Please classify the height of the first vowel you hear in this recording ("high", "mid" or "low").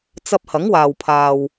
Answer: low